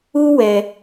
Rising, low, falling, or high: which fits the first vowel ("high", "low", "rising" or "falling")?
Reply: high